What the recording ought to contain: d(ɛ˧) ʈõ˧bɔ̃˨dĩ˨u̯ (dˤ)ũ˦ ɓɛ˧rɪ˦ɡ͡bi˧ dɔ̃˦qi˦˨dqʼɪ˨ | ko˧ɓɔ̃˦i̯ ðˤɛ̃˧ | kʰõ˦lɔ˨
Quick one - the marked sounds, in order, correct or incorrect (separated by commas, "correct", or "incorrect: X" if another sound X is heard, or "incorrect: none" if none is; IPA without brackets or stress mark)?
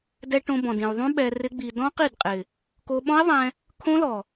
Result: correct, incorrect: ðˤ